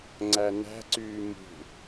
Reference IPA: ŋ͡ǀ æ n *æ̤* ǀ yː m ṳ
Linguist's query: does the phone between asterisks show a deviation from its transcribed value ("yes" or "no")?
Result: no